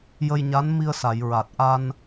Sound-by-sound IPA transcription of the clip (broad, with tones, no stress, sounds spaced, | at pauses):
j ə˧ j ɲ a˧˥ n m i˧ ə̯ s a˨˩˨ j ɹ a˨˩ t̚ ʔ a˧ n